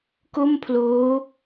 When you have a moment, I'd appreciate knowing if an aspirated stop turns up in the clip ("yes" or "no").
yes